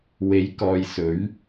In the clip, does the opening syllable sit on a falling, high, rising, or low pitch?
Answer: rising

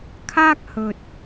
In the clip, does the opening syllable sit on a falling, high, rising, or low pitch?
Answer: high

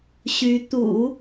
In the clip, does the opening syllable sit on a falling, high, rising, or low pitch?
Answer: rising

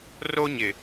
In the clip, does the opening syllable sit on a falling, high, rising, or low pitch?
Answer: high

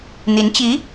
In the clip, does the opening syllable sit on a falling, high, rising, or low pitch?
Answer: rising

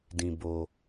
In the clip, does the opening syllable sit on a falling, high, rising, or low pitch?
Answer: low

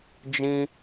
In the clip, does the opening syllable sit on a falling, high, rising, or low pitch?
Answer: high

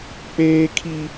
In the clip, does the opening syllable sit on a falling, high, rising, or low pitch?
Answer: high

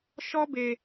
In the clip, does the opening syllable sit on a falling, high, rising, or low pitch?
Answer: high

